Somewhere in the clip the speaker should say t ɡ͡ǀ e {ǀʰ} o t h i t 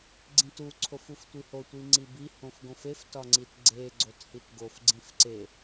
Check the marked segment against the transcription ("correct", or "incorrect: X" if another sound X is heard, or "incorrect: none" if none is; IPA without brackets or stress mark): incorrect: ɡ͡ǀ